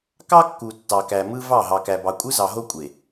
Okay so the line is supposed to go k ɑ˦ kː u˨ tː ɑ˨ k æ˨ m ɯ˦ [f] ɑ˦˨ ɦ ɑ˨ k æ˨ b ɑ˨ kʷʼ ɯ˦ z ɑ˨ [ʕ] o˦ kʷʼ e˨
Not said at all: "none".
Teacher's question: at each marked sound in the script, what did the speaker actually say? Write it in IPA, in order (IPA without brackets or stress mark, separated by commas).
v, ɦ